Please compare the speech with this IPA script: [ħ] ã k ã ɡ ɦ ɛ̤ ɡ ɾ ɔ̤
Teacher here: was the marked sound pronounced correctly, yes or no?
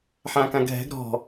yes